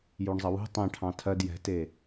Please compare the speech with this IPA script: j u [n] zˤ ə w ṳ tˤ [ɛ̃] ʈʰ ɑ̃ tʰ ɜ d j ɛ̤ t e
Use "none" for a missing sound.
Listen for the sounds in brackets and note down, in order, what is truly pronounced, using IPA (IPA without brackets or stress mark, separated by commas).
ɳ, ɛ̃